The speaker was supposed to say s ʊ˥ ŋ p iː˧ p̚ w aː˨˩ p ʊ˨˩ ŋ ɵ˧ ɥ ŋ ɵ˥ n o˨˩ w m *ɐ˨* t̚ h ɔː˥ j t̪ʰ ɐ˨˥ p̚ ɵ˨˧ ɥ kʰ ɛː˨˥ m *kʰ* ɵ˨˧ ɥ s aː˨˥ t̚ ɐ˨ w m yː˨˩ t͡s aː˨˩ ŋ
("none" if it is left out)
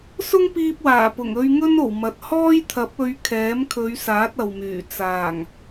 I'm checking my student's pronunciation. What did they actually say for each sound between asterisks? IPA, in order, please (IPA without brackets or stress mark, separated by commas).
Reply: ɐ˨, kʰ